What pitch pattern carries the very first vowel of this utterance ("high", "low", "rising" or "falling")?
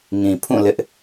low